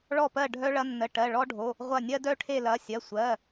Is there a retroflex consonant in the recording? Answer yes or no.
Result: yes